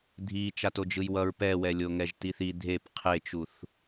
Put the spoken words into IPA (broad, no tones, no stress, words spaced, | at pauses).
dʱi t͡ʃatod͡ʒɯjwʌɹ pɛwɛlʲo ŋɛʒtiθi dʱep qʰet͡ʃuθ